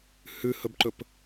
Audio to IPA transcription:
h ʉ h ɵ b ǃ ɵ p

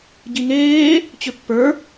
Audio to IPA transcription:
ɟ i ŋ eː | t͡ɕ ʏ pː ə˞

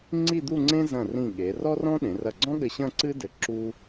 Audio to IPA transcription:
ŋ͡ǀ i˥˧ d̪ u˥˧ ŋ͡ǀ ẽ˥ z ɐ̃˧˩ r ĩ˧˩ ɠ e˩˧ r ɔ˥ r ɔ̃˥ ɗ ẽ˩˧ r ɐ˧˩ ɡ͡ǀ ɔ̃˥ ɠ ɘ˧ ɕ ɐ̃˥˧ ǀ ɨ˥ d ɘ˧ ǁ u˥

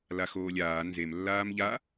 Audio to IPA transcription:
l a x oː lʲ aː n z e m lː aː m ʎ a

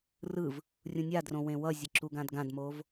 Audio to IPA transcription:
r ɯ v | rʲ ũ nʲ a d r õ w ẽ w ʌ zʲ e ǁ u ɡ ã d ɡ ã d m o v

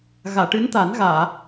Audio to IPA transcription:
ɣ aː˨˩˨ ʈ ɨ˧˥ n t̪ a˨˩˦ n ɣ aː˨˩˨

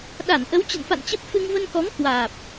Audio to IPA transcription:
ɗ a˧˩ n ʔ ə˨˦ w t͡ɕ ə̰˧˨ n f a̰˧˨ n t͡ɕ ə˦˥ p̚ f ɨ˧ ŋ v ə˧ n k ɔ˨˦ ŋ k w aː˨˩ p̚

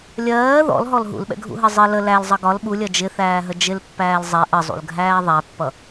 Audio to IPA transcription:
lʲ ɜː ð ɔ̰ l ɦ ɔ l ɦ ṵ l ɓ ɛ̰ ɡʱ ṵ ɦ ɜ zˤ ɪ l ə l æ l zˤ ʌ ɡ ɒ l ɓ u lʲ ɜ d͡ʒ ɪ θ æː ɦ ə d͡ʒ ɪ l pː æː l zˤ ɛ ʔ ə zˤ ṵ l ɡʱ æː ðˤ æ pː ʌ

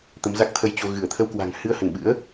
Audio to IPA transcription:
t̪ ə˨˦ m z a˦˥ k̚ t̪ʰ ə˧ j t͡ɕ o˧ ɣ ɨ˧˩ ə̯ t̪ʰ ə˧ w k w a̤˨˩ ŋ h ɨ˧ ə̯ h ə˧˩ n ɓ ɨ̰˧˥ ə̯

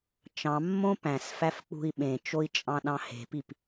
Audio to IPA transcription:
t͡ʃ ɑ̃ mː õ p æ̃ s f æ f k͡p ṳ i̯ ɓ ẽ t͡ʃ o i̯ t͡ʃʼ ɑ̃ ɗ ɑ̃ h e̤ p i p

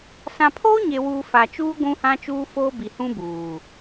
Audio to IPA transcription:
s ã˨ pʰ oː˦ ɲ e˨ w uː˨ f a˨ t͡ʃ uː˦ ɡʷ ũ˦ h ã˦ t͡ʃ uː˦ f oː˦ b i˨ h ũ˦ b uː˨

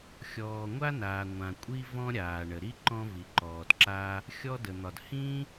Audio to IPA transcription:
xʲ ɔː˩ ŋʷ a˥ n aː˩ ŋʷ ã˩ kʷʼ i˥ v ɔ̃˥ ɾʲ aː˩ ɳ ə˩ ɾ i˥ ǃ ɔ̃˥ v i˩ ǃ ɔː˩ d ǁ a˥ | xʲ ɔ˥ d ə˩ n̪ ɒ˩ d h ĩ˥

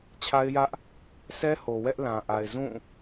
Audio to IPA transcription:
t͡ɕʰ a˦ ɪ̯ j ä˦ ʔ | sʰ ɛ˦ h o˨ w ɛ˦ ʔ l ã˨ ʔ a˨ ɪ̯ z ũ˦˨

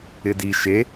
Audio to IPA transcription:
ɪ d i ʃ e

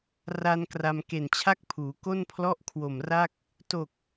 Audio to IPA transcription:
r a˧ n k r a˧ m k e˨˩ n t͡ɕʰ a˥˩ k̚ pʰ uː˩˦ k o˥˩ n pʰ l ɔ˥˩ ʔ kʰ w o˨˩ m r a˥˩ k̚ | t o˨˩ k̚

